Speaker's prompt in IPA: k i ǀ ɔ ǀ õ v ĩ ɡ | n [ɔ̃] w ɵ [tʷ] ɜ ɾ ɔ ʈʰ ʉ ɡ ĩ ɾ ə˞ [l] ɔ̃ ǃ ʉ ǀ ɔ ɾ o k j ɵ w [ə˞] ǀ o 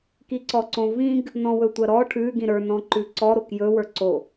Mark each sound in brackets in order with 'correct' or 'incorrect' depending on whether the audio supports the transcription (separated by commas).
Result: correct, correct, incorrect, correct